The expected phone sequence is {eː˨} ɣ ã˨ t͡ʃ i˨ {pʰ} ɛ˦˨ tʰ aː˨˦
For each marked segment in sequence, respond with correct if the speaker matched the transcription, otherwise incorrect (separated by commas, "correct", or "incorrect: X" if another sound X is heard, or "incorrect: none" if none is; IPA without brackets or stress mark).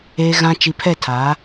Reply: correct, correct